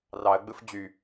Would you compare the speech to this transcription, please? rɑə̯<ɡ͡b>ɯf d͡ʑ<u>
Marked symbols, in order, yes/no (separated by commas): yes, no